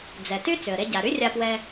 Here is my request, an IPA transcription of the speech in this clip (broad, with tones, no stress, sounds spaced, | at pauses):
d͡z ɛ˩ t y˥ t͡s ʏ˩ ə̯ ɾ e˧ ɟ a˩ ɾ y˥ rʲ a˧ p w ɛ˧